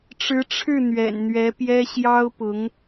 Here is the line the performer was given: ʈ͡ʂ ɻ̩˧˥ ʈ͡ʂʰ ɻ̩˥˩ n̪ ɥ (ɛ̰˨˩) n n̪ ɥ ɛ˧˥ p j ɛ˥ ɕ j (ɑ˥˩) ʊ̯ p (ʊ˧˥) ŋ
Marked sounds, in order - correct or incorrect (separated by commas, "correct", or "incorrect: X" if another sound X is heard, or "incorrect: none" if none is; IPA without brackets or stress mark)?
correct, incorrect: ɑ˥, correct